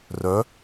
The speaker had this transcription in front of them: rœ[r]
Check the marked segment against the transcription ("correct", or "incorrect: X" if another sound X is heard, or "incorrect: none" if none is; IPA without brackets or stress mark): incorrect: none